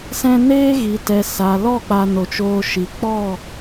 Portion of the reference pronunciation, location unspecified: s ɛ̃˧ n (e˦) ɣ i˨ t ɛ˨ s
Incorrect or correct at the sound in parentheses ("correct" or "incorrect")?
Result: incorrect